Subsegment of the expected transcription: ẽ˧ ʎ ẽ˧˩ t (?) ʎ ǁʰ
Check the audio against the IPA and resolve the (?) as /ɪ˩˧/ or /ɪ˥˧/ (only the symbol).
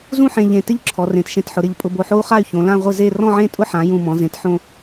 ɪ˥˧